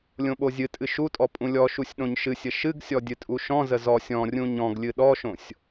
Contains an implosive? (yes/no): yes